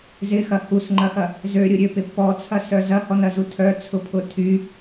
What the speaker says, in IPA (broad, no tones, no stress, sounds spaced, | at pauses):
z ɪ x ɐ h u s ŋ͡ǃ ɐ x ɐ | z ø ɾʲ ʊ ɾʲ ø p ɪ p ɔ t͡sʰ ɐ s œ z ɐ h ɔ n ɐ z u tʰ œ t͡sʰ ʊ pʰ ʊ tʰ y